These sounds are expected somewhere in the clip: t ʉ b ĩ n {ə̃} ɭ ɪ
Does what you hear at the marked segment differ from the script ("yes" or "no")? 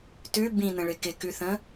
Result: no